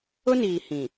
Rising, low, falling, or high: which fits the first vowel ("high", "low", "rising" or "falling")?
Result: high